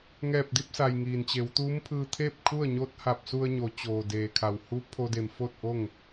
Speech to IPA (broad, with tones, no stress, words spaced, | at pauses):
ŋɛː˧˩p̚di˥˨p̚sa˩j ŋiː˩nt͡ɕe˩˧wt̪uː˧˥mpʰɯː˧ t̪ʰeː˥˨p̚kʰu˥˨ə̯ɲoː˧˥t̚ ha˧˩p̚su˧ə̯ɲo˩˧t͡ɕoː˩ deː˧˩kʰa˧˩w hu˧˥ pʰo˧de˧˩m fo˥˨t̚ʔo˥˨ŋ